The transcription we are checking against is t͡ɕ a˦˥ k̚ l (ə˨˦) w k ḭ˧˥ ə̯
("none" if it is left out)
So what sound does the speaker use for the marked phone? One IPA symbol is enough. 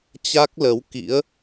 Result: ə˨˦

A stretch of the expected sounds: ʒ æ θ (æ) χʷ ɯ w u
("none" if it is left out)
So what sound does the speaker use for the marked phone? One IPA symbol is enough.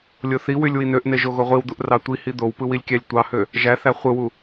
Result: æ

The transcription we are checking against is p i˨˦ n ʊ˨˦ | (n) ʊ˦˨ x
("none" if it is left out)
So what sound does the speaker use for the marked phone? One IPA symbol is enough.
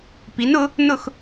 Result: n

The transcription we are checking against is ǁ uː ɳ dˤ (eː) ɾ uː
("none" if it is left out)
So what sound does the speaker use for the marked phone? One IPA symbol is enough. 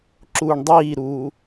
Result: iː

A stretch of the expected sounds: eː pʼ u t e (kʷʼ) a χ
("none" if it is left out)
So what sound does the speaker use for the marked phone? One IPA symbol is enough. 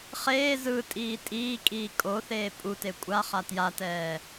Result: kʷʼ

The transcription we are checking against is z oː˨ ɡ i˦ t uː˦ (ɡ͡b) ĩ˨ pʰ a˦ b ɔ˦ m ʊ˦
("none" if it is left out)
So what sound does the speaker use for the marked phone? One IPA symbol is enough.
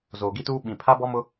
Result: ɓ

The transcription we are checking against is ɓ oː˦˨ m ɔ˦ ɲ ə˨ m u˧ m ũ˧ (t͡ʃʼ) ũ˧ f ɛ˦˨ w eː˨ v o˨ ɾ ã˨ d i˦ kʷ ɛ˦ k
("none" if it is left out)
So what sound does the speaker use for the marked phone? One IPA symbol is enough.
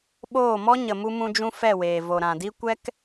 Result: d͡ʒ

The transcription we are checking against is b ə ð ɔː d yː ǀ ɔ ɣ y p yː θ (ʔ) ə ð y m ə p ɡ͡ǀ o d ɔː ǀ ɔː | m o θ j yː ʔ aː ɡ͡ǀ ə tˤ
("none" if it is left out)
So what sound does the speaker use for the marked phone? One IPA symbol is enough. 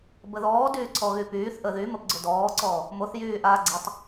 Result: ʔ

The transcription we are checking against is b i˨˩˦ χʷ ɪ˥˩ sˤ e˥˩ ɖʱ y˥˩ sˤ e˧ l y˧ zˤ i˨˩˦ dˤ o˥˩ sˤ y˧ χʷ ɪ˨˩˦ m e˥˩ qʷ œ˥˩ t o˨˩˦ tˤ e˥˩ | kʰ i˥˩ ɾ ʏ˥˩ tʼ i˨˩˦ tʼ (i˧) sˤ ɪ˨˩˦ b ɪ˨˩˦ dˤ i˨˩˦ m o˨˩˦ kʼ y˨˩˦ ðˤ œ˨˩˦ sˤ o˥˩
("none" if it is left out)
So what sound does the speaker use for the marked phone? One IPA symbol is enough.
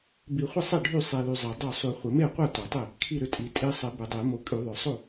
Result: i˧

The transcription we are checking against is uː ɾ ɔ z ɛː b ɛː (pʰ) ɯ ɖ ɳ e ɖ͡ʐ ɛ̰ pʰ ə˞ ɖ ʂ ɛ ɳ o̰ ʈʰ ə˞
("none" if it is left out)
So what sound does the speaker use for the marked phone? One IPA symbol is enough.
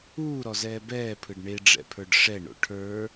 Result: pʰ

